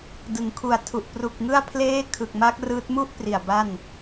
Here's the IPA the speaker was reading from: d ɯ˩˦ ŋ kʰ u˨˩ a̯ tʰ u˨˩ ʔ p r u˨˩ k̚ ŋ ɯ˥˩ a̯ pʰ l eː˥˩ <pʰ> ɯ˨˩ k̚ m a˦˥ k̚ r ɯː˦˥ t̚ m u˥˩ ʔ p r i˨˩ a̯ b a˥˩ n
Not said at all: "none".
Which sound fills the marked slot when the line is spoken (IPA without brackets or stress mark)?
kʰ